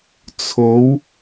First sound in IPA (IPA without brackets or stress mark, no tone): t͡sʰ